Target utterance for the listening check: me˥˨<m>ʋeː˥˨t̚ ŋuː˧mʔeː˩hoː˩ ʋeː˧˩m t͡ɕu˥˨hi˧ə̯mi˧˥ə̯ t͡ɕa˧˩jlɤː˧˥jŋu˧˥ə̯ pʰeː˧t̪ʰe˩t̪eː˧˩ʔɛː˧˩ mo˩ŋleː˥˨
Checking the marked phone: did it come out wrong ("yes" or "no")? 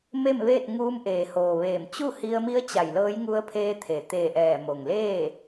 no